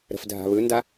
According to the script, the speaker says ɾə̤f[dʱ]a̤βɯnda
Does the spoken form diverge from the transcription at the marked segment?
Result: no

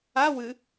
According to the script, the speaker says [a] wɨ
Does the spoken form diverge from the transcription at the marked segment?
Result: no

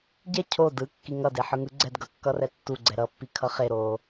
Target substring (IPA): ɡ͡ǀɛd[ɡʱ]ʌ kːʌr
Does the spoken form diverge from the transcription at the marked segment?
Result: yes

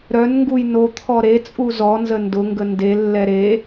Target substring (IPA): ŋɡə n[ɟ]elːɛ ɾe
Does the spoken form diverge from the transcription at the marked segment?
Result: yes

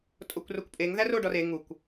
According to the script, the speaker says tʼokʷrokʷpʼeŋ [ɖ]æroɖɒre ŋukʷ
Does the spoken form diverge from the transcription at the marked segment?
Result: yes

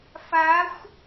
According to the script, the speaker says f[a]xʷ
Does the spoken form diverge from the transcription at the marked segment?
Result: no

